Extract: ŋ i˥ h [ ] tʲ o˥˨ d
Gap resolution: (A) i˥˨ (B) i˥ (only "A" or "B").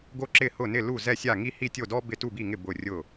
A